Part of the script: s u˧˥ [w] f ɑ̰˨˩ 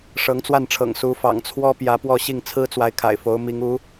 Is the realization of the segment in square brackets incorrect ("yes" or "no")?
yes